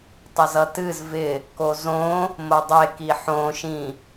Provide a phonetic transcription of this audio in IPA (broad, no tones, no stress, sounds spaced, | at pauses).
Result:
tˤ ə z ʌ t ɨ z v ɪ | k o z õ | m o dˤ e k i ħ õ ʃ ĩ